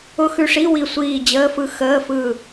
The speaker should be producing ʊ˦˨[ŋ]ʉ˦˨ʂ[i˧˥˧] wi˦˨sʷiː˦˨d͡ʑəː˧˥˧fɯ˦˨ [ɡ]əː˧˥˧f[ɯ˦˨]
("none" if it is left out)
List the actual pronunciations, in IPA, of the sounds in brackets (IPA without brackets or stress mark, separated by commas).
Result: x, i˧˥˧, x, ɯ˦˨